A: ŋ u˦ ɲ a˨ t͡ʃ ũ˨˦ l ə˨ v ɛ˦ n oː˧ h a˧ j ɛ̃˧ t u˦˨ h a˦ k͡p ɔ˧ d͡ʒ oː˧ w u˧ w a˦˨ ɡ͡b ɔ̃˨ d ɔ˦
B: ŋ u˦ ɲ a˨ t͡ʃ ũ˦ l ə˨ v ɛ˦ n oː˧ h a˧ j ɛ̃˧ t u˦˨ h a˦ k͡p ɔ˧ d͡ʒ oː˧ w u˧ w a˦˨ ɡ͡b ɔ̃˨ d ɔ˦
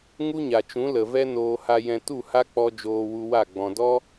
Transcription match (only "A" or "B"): A